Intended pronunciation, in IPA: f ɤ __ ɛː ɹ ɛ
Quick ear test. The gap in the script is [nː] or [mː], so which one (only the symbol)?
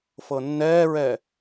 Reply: nː